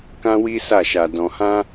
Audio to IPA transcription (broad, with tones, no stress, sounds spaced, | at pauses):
k ã˦ w i˦ s a˦˨ ʃ a˧ d ɔ̃˧ h ã˦